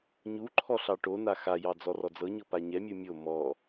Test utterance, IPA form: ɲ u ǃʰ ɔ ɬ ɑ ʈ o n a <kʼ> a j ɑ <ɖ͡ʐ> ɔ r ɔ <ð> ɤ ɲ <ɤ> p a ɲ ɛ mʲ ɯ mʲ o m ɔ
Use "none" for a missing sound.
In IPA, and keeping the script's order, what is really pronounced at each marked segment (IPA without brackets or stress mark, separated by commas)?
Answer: x, d͡z, d͡z, ɤ